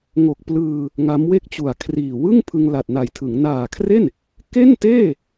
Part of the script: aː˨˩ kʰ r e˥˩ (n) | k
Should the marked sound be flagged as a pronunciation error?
no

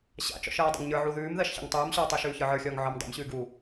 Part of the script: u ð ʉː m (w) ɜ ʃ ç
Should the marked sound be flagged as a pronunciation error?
yes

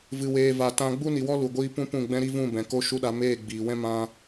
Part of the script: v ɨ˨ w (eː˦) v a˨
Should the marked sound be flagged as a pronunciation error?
yes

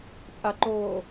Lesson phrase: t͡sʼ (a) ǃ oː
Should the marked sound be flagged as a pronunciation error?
no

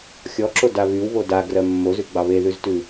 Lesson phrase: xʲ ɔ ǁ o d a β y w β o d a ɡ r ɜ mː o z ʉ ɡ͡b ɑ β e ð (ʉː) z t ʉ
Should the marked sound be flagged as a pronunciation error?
yes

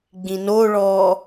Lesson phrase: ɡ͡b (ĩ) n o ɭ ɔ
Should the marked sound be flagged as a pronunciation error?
no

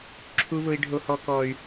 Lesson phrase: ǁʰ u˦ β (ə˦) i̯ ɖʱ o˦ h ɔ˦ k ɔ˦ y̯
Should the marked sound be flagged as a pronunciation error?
yes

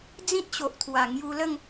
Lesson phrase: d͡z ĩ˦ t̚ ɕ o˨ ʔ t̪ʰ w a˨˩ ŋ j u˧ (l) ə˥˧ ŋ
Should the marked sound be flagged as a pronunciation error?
no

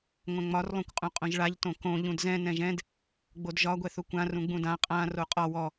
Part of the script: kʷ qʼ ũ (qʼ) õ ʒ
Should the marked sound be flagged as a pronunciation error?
no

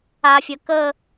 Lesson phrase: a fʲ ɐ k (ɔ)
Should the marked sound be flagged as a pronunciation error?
yes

